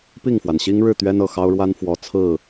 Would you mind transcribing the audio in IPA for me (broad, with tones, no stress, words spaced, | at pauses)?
pi˥˨ŋfwa˩nɕi˦ŋɻɻ̩˥˨ t̪ɥɛ˦nɤ˨˩xɑ˦ʊ̯ɻwa˦n fwɔ˨˩ t͡sʰɹ̩˥˨